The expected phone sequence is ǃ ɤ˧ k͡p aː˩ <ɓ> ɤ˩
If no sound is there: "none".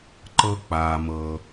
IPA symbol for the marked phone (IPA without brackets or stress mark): m